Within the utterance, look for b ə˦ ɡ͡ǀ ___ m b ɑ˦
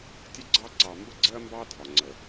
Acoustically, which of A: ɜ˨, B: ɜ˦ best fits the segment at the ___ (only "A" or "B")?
B